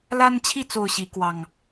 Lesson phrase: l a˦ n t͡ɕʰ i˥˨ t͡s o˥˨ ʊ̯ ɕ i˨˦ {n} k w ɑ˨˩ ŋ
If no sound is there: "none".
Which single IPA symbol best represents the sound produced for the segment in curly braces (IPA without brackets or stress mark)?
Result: none